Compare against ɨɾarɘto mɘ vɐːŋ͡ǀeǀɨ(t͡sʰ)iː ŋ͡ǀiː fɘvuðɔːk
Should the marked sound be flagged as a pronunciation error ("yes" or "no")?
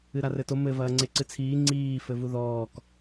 no